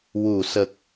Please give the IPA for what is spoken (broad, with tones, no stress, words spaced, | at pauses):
wu˨˩˨sə˨˩k̚